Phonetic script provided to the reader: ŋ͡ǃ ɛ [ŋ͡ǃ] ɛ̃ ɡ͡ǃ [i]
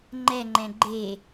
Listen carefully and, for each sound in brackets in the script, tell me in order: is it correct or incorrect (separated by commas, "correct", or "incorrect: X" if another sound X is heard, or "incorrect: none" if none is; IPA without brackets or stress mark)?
correct, incorrect: e